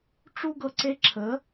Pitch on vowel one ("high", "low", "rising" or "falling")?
high